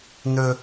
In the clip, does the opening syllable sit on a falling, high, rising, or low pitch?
high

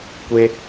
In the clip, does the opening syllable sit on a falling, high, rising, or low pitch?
high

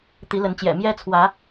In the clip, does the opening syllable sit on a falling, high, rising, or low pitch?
rising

